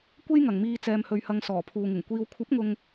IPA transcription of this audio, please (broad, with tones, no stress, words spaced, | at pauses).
kʷe˥jŋɐ˨ŋmiː˧ t͡sɛː˨mhɵ˨ɥhɐ˨ŋ sɔː˨˩pʰuː˨ŋɪ˨˩ŋ kʷiː˨wkʷʰɐ˨˥p̚ŋʊ˨ŋ